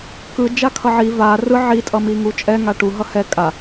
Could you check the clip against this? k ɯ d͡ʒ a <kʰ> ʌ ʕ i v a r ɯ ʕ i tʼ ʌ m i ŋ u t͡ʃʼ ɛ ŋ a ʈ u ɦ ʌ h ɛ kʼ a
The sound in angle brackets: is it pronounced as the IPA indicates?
yes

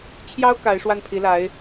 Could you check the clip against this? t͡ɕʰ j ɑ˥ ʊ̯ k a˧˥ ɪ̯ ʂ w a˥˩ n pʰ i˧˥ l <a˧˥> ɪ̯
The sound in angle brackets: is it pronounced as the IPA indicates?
yes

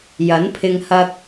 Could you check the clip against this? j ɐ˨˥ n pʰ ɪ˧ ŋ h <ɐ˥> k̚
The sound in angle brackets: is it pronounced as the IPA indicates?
yes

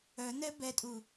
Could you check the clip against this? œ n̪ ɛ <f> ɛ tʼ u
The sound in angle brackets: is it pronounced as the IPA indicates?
no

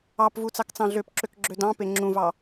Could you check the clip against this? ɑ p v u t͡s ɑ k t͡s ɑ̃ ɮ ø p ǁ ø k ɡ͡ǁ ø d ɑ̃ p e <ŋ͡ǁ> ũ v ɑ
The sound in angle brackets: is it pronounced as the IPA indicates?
yes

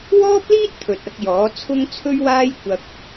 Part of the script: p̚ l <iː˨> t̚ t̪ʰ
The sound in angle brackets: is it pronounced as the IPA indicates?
no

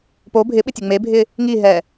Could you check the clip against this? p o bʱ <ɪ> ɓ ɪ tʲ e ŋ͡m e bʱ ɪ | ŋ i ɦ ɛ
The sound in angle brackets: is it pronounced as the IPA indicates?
yes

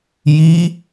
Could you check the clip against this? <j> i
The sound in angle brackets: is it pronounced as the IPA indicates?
yes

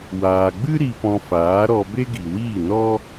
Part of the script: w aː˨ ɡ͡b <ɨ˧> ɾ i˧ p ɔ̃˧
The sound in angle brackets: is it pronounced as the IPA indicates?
no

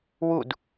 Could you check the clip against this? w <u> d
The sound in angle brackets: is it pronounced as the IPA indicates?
yes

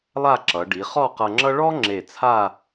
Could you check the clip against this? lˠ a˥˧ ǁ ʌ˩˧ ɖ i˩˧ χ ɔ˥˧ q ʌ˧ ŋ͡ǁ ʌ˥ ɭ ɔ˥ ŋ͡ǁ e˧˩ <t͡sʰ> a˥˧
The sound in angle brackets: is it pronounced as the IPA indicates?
yes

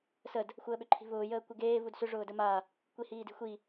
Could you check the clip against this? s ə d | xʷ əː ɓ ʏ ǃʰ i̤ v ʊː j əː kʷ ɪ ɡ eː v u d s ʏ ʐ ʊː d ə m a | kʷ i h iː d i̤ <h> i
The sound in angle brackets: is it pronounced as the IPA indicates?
no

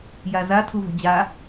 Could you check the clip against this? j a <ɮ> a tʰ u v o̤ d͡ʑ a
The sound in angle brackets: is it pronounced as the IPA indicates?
no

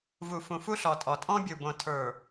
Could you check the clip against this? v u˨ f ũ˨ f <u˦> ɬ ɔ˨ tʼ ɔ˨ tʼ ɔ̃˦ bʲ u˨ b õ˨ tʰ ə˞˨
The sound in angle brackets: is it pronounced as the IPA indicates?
yes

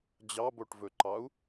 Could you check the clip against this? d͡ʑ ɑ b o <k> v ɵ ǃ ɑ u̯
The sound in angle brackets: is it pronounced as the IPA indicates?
no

